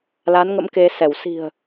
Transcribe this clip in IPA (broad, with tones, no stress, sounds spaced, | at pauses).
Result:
l a˨˦ n ŋ ə̰˧˥ m k e˧ s ɛ˧˩ w s i̤˨˩ ə̯